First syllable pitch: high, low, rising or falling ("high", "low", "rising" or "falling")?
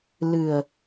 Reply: low